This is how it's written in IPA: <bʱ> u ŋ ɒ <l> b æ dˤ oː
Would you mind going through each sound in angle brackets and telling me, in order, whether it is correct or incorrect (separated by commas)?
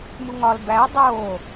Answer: incorrect, correct